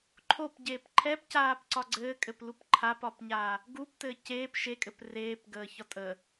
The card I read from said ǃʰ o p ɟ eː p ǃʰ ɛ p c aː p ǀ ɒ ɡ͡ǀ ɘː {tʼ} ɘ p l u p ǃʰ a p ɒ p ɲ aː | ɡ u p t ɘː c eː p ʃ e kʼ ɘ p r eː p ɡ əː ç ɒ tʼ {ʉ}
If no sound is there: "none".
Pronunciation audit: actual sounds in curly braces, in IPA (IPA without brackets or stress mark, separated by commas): kʼ, ə